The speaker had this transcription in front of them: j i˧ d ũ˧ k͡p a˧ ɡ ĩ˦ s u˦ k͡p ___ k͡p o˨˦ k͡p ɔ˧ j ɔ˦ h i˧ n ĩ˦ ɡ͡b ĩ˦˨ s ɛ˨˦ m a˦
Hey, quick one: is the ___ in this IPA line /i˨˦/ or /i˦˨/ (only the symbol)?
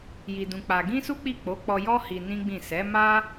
i˦˨